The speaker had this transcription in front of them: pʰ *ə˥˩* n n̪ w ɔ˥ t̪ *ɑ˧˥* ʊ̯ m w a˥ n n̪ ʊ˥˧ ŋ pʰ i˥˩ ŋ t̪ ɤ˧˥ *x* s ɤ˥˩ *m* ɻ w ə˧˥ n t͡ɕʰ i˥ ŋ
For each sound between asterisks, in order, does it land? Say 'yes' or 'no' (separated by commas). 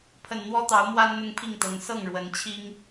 no, yes, no, no